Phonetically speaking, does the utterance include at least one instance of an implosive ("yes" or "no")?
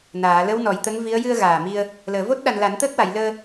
yes